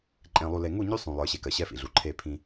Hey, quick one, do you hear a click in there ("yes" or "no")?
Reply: yes